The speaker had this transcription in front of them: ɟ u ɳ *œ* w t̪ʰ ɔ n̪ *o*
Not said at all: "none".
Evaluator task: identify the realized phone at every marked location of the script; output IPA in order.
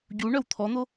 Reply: œ, o

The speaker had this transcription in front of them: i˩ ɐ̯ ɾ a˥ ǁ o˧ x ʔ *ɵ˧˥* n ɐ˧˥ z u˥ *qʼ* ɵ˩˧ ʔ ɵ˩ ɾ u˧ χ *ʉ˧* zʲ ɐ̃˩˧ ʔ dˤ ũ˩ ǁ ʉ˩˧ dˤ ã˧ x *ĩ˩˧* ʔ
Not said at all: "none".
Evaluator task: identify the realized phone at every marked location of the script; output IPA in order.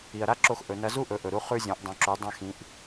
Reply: ɵ˩˧, ʔ, ʉ˧, ĩ˩˧

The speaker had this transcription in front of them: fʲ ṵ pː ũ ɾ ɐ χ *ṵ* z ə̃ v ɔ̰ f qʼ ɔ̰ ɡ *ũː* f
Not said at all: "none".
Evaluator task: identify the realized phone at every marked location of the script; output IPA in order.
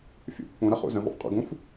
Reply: ṵ, ũ

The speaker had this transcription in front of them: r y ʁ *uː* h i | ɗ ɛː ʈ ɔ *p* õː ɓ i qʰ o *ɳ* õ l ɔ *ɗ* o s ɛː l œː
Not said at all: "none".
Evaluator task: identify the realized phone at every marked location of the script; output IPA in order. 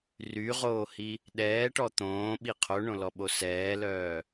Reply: oː, t̪, ɳ, ɓ

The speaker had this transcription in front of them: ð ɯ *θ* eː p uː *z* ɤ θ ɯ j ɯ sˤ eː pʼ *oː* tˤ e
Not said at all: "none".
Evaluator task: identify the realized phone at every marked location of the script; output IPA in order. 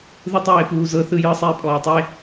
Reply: tˤ, z, ɔː

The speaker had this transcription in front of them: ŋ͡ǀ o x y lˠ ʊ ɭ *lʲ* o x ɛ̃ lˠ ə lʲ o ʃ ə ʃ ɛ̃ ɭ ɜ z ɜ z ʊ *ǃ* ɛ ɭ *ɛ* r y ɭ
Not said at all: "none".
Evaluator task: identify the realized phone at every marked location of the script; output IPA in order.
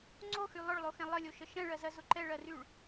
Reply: lˠ, ǃ, ɜ

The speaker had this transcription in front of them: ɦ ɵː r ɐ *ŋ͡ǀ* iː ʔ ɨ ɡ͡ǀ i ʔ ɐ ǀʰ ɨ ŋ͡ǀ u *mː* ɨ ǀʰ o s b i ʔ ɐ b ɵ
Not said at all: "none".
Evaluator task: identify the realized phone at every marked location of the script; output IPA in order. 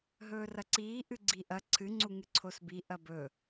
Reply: ǀ, ŋ

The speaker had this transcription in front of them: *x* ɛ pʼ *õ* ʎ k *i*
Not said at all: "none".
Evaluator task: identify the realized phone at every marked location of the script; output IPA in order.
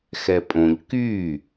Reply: x, õ, y

